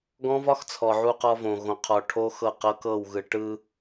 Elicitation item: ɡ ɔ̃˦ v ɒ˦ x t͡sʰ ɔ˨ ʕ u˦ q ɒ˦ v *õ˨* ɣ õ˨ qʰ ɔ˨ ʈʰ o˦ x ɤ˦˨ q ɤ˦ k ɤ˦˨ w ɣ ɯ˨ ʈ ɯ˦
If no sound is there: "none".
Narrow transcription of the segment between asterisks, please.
õ˨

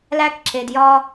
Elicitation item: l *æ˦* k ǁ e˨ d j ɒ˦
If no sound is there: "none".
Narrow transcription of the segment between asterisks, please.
æ˦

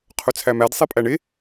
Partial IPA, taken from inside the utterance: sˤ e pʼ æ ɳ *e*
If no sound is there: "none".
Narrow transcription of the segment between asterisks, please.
e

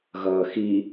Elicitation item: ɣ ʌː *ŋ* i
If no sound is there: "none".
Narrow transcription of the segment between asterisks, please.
x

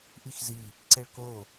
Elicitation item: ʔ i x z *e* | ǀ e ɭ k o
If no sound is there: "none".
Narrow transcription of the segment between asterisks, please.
i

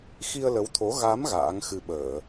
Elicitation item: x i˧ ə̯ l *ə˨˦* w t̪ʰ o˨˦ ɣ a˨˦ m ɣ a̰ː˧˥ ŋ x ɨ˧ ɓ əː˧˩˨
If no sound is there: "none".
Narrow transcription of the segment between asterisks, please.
ə˨˦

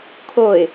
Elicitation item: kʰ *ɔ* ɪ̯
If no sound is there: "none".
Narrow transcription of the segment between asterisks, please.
o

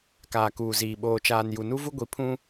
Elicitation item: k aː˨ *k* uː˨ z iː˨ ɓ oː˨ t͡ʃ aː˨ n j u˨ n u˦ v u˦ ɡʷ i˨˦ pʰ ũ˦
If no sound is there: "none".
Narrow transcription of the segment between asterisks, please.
k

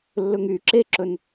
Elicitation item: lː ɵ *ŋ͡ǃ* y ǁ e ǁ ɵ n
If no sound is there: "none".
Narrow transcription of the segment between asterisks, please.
ŋ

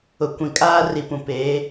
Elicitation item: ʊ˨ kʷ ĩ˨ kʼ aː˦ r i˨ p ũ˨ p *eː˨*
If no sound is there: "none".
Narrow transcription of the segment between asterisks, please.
eː˨˦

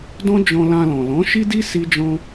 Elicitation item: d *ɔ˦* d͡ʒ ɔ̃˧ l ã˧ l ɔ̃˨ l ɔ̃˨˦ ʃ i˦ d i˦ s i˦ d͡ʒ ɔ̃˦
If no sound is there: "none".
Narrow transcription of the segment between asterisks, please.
ɔ̃˦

